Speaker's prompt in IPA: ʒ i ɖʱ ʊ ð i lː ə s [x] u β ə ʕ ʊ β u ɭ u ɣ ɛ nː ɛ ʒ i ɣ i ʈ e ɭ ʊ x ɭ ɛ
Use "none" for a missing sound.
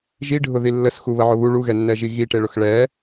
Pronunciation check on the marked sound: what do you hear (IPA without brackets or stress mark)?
x